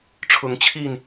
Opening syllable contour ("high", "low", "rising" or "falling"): rising